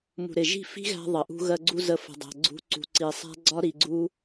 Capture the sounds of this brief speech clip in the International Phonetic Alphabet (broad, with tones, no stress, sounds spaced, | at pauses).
m ṳ˨ ɾ ɪ˨ ʒ i̤˦˨ f i̤˦ ɣ æ̤˧ ðˤ ə˨ ʔ ṳ˧ ɣ ɜ˧ ɡ͡ǀ u˧ z ə˧ f ə̤˧ dˤ æ̤˧ ɡ͡ǀ ṳ˦ ǀ ṳ˧ ǀ i˧ sˤ æ̤˦ ɡ͡ǀ ɒ˦ ɾ i˧ ɡ͡ǀ u˦